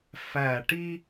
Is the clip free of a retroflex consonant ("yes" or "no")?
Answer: no